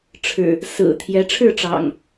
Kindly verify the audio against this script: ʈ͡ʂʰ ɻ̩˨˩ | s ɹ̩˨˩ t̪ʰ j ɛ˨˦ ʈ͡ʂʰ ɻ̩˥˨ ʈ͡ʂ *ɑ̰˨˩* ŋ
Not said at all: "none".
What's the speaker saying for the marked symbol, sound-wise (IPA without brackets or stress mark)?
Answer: ɑ̰˨˩